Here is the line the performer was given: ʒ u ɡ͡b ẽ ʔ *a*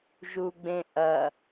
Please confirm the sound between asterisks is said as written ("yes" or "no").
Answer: no